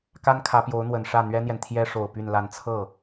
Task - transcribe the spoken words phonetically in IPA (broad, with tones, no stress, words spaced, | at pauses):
ka˥nkʰä˧˥pjo˧˥ʊ̯n̪wə˨˩n ʂä˥˩n̪ɥɛ˥n̪jɛ˨n t̪ʰjɛ˥ ʂo˨˩ʊ̯ py˥˧nla˥˧n t͡sʰɤ˥˩